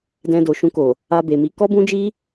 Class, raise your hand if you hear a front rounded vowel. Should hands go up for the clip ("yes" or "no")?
no